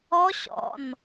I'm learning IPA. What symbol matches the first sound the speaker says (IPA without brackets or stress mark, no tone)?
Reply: ɔ